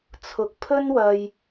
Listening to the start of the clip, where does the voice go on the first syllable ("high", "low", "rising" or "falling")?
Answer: low